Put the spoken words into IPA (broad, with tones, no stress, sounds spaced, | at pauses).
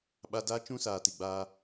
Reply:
ɓ a˧ d aː˦ t͡ʃ ũ˦ s aː˨ t i˨ ɡ͡b aː˧